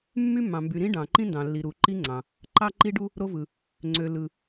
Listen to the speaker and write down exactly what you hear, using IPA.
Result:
mː y˥ mː ɑ̃˨ m b y˨ ɾ ĩ˥ ɖ ɑ̃˨ ǃ ĩ˥ n d ɑ̃˨ lː i˨ ɾ u˨ ǃ i˥ ŋ͡ǀ ɑ̃˨ | ǃ ɑ˥ ǃ i˥ ɖ u˥ | ɾ o˥ v ɯ˨ | ŋ͡ǀ ø˨ l ɯ˨

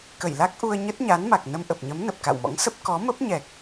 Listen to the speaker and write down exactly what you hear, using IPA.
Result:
k ə˧˩ j l a˦˥ k̚ ʔ u˧ ə̯ ɲ ə˦˥ t̚ ɲ a˨˦ n m a˨˩ k̚ n ə˧ m ʔ ə˨˩ p̚ ɲ ə˨˦ m n ə˨˩ p̚ k a̰˧˨ w m ɔ̰˧˥ ŋ s ə˦˥ p̚ k ɔ˨˦ m ə˦˥ p̚ ɲ ɛ˨˩ k̚

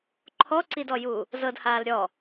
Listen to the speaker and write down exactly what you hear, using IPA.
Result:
ǃʰ ɔ ǀ i d ɔ j uː | z ɤ d h aː l ɾʲ ɔ

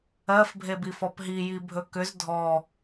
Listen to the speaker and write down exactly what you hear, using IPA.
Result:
ɜ f bʱ e b i f ɔ p ɦ i j i bʱ ɵ k ʏ z dʱ ɔ

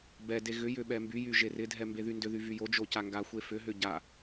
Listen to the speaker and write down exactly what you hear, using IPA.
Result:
b ɛ d e ɣ ʏ j ʏ ɓ ɛ m b y j y ʒ e r ɪ dʱ ɛ m b e ð y n d ʏ ð y v y j o d͡ʒ o c a ŋ ɡ a xʷ e f ʏ ɦ ʏ ɟ a

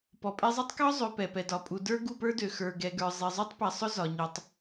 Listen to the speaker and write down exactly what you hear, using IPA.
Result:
p ɔ˨ pʼ ɛ˦ zˤ e˦ tˤ k ɒ˦ zˤ ø˨ p ɛ˨ p ɛ˨ d ɒ˨ pʼ u˨ d ə˞˦ ɡ u˨ p ə˞˦ d ø˨ x ə˞˨ ɡ ɛ˨ ɡ ə˞˨ zˤ e˨ zˤ ø˦ tˤ p ɛ˨ sˤ ʊ˦ z ɒ˨ ɲ ɔ˨ tˤ

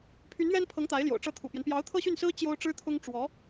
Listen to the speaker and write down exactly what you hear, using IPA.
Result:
pʰ y˧˥ n ɥ ɛ˥ n pʰ ɤ˧˥ ŋ t̪ a˧˥ ɪ̯ l j o̰˨˩ ʊ̯ ʈ͡ʂ ɤ˥˩ t̪ʰ ṵ˨˩ p j ɛ˦ n p j ɑ˧˥ ʊ̯ t̪ʰ ɤ˥˧ ɕ y˥˩ n s ɹ̩˥ t͡ɕ j o˥ ʊ̯ ʈ͡ʂ ɻ̩˥ t̪ʰ ʊ˥ ŋ ʈ͡ʂ w ɔ˧˥

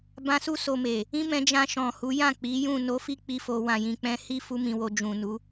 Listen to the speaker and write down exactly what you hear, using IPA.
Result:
b ã˧ s u˦ s o˧ m e˨ | ĩ˦ m ɛ̃˧ d͡ʒ ã˧ ʃ ɔ̃˨ h u˨˦ j ã˦˨ k͡p i˨˦ j ũ˦˨ n o˨˦ f i˧ k͡p i˦ f o˧ w ã˨ j ĩ˨ k͡p ɛ̃˧ h i˦ f u˧ m ĩ˨ w o˨ d͡ʒ ũ˨ n u˨˦

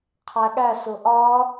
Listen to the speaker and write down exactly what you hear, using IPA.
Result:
qʰ æ ɠ æ s ʊ ʔ ɒ

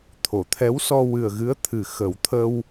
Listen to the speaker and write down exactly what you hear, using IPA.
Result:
t̪ʰ o˨˩˨ t̪ʰ ɛ˧˥ w s ɔ˧ w ɨ˨˩ ə̯ ɣ ɨ˧˥ ə̯ t̪ʰ ɨ˨˩ x ə˨˩˦ w t̪ʰ ə˧ w

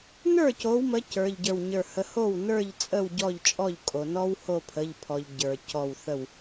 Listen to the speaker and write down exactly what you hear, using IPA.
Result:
n ə˞˥˩ c o˨˦ w m ə˨˦ c ə˞˩˧˩ ʎ ɟ ə˞˧˩ w ɲ ə˞˧˩ h ə˨˦ h o˥˩ w n ə˞˥˩ ʎ t͡sʼ ə˥˩ w ɟ ɔ˥˩ ʎ t͡ʃʼ ɔ˥˩ ʎ kʼ o˩ n ɔ˦ w h o˧˩ pʰ ə˩˧˩ ʎ pʰ ɔ˩ ʎ ɟ ə˞˩ c ɔ˧˩ w θ ə˧˩ w

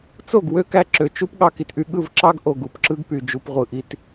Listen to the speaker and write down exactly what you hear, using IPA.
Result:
t͡s o˦˨ ɡ w ø˦ k æ˧ ǁ ø˨ t͡ʃ u˦ p ɠ ɑ˧ k i˨ t ʔ y˧ ɠ ɯ˦˨ v ǁ ɑ˦ ɡ ʔ o˨ ɡ u˨ p ǁ ɯ˦ ɡ p y˨ d͡ʒ u˨ p ʁʷ ɯ˨ ʔ i˧ t

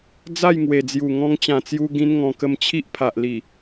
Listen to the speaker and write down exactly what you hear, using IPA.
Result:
d͡z a˥˧ j ŋ w e˨˩ d͡z j u˨˩ ŋ ɔ̃˧ ŋ t͡ɕ ã˨˩ t͡s j u˧ ɡ ĩ˦ n ŋ ɔ̃˧ k ə˧ m t͡ɕʰ i˦ ʔ pʰ a˨ ʔ l i˨˩

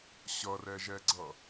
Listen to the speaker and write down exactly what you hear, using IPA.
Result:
ɕ ʌ r ɛ ʒ ɛ ɡ͡ǀ ʌ

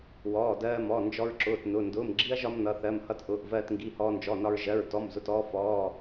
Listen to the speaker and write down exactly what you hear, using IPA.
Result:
w ɔː˩˧˩ d ɜː˧ m ɔ˩˧˩ n d͡ʒ ɔ˧ ɹ ǁ ʊː˩˧˩ t n ʊ˩˧˩ n d ʊː˩˧˩ m ɡ͡ǁ i˧ ɐ̯ ʒ ɒ˧ m n ʌ˩˧˩ θ ɜ˩˧˩ m h ʌ˧ t ʔ ʊː˩˧˩ ʔ v ɜː˧ t ŋ ɡ i˩˧˩ h ɔː˧ n d͡ʒ ɔ˩˧˩ n ɒ˧ ɹ ʒ ɜ˩˧˩ ɹ t ɔ˩˧˩ m z ʊ˩˧˩ t ɔː˧ f ɔː˩˧˩

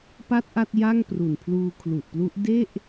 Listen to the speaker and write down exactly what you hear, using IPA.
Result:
p a˥˩ t̚ ʔ a˥˩ t̚ j a˥˩ ŋ p r u˨˩ n pʰ l uː˧ kʰ l u˨˩ ʔ p l u˦˥ ʔ d e˥˩ ʔ

